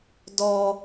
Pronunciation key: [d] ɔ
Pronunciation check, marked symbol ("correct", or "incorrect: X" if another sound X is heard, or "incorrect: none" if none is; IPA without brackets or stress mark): correct